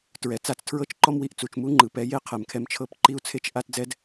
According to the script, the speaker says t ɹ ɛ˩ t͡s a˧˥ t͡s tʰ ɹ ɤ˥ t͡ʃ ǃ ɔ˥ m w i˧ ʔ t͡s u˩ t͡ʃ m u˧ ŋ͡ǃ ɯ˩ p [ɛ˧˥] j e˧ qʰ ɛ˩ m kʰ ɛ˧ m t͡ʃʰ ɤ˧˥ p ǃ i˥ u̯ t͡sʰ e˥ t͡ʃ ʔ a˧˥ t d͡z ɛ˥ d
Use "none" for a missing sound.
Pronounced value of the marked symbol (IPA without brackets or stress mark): ɛ˩˧